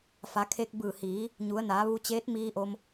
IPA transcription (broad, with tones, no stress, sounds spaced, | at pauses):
f a˩˧ kʰ eː˧ k̚ b ɯː˧˩ h iː˩˧ | ɲ u˩˧ ə̯ n aː˩˧ ʋ u˧ t͡ɕ eː˧˥ t̚ m iː˧ ʔ o˧ m